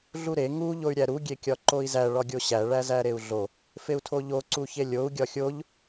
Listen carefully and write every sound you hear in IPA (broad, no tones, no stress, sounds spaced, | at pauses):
ɮ u ɾ e ŋ u ʎ o y̯ ɾʲ æ ɾ u ɡʲ e kʲ ɒ ǃ o i̯ z æ ɭ ɒ ɡʲ o ɕ æ ɭ æ z æ ɾ e u̯ ɮ o | f e u̯ tʰ o ʎ o ǀ u ç e lʲ o u̯ ɡʲ ɒ xʲ o ʎ